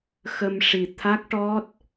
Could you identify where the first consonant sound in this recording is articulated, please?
velar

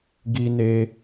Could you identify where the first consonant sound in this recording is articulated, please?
velar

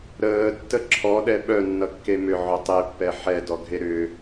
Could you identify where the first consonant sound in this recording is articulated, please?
alveolar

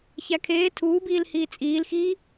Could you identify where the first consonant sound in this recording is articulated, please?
palatal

